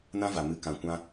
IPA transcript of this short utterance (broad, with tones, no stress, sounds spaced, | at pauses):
n ã˦ v a˨ m ɨ˨˦ k ã˨ kʷ ã˧